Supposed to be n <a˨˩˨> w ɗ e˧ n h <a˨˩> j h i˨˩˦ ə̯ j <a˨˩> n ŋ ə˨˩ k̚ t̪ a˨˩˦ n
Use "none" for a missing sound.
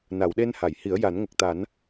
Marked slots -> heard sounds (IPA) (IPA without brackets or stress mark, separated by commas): a˨˩˨, a˨˩˨, a˨˩˦